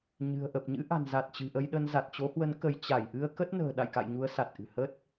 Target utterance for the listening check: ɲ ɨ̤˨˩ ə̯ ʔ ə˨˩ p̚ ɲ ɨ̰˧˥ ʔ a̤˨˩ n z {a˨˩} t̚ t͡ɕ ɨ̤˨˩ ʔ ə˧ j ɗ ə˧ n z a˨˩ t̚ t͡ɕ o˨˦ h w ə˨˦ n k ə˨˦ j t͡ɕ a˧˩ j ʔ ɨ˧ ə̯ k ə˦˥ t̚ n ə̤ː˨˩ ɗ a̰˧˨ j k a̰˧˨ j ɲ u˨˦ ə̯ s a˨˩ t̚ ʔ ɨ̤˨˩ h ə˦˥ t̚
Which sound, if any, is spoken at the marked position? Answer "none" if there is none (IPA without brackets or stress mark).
a˨˩